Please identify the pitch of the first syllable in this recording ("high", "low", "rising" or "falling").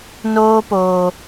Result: high